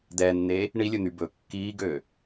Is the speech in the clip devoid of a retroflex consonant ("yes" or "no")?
no